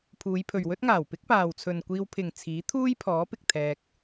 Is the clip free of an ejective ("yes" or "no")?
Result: yes